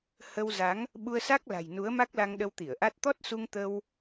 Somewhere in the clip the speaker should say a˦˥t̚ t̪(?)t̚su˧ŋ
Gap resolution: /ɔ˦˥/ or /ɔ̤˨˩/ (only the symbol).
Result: ɔ˦˥